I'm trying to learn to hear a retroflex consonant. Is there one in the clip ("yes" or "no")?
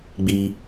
no